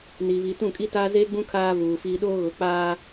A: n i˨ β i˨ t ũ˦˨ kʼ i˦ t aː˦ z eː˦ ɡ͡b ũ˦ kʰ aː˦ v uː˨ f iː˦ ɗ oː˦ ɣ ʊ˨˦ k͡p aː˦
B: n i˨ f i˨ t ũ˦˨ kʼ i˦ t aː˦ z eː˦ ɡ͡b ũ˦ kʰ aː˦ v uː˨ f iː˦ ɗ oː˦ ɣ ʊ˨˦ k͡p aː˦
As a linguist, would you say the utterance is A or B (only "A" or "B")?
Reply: A